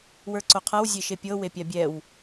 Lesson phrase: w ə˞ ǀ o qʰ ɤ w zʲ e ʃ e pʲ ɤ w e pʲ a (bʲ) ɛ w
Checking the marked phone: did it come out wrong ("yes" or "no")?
no